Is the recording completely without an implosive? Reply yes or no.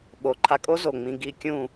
no